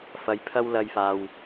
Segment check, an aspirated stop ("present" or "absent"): present